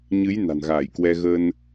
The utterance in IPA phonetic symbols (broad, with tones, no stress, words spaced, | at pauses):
ɲɨ˨˦j na̤˨˩nɣaː˧˩jkwɛ˧ ɣə˧n